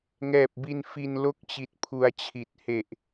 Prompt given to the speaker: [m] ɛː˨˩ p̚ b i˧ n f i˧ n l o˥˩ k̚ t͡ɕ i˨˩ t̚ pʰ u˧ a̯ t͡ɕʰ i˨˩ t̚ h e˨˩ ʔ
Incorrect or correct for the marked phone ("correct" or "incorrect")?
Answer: incorrect